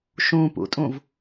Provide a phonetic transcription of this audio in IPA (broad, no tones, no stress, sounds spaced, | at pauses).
ʃ ũ p ṵ tʼ ũ v